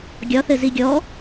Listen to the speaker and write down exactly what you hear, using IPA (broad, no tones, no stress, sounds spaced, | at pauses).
ɡʲ ɒ θ ɘ z i ɡʲ ɔ